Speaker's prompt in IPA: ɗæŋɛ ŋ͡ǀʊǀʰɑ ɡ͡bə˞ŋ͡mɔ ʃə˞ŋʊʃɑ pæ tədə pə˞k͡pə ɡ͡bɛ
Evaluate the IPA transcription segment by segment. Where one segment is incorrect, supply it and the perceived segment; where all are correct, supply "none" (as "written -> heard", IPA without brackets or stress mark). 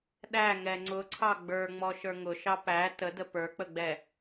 none